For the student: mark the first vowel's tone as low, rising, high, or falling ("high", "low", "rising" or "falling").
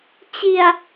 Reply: low